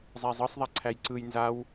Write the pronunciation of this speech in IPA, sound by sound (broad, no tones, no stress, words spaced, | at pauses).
zˤæzˤɤsˤðˤa ǀʰæjǀɯj nzaw